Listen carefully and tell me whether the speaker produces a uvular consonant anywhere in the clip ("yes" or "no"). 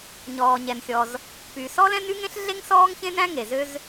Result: no